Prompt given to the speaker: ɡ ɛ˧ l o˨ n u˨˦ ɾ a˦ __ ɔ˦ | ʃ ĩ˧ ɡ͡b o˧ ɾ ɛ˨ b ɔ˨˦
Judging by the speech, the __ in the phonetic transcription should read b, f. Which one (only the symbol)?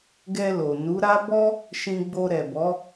b